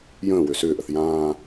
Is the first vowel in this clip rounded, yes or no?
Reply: no